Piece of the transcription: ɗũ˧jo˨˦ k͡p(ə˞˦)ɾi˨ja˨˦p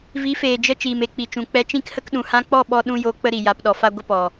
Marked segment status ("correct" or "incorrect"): incorrect